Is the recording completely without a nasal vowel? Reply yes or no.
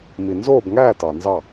yes